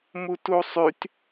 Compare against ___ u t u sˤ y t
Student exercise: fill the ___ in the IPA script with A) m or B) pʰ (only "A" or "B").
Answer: A